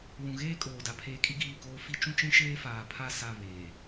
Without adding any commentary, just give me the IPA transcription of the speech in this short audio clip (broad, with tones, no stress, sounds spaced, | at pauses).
w ũ˨ ɣ eː˦ kʼ oː˨ d a˨ pʰ eː˦ kʼ i˦ ɡ iː˦˨ k oː˦ f i˦ t͡ʃ ũ˦ t͡ʃ ĩ˦ ʃ eː˦ f aː˨ pʰ a˦˨ s a˦˨ β eː˨